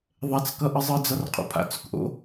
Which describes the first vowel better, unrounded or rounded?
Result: unrounded